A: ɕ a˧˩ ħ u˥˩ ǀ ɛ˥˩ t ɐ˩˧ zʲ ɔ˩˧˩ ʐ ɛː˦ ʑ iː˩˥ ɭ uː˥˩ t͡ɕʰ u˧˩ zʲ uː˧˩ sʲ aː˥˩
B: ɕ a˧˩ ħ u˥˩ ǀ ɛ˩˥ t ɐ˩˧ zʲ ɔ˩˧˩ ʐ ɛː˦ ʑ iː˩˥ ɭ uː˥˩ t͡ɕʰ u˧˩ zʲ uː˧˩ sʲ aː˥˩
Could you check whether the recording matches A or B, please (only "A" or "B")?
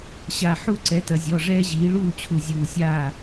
B